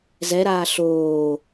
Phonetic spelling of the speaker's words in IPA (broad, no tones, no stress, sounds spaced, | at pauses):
z ɛ ɾ aː ɬ oː